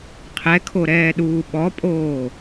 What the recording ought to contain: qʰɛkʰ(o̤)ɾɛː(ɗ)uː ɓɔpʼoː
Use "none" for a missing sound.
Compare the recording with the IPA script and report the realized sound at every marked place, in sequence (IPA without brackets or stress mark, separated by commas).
o, ɗ